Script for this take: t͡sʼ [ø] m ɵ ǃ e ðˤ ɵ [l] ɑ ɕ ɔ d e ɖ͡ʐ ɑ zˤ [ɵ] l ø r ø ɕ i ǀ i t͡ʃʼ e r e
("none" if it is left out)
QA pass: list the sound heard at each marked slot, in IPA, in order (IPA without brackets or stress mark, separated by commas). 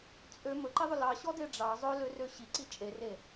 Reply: ø, l, ɵ